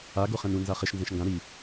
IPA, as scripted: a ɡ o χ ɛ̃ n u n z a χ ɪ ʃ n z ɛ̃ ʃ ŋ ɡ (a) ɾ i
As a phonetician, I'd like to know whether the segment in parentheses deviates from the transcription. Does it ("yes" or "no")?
yes